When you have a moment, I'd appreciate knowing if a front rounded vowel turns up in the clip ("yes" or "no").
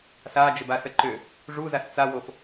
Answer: yes